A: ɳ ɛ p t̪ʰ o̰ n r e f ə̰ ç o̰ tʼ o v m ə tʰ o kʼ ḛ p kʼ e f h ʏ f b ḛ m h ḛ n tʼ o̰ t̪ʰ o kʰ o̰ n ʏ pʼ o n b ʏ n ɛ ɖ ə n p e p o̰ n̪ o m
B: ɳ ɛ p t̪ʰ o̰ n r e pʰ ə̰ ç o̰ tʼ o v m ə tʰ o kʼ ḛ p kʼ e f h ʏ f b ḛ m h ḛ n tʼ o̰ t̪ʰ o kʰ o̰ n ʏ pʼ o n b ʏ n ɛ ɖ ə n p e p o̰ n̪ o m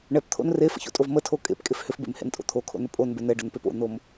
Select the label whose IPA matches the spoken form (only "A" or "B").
A